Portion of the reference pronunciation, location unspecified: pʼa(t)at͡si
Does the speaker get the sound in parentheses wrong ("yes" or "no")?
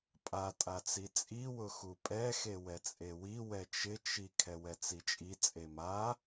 yes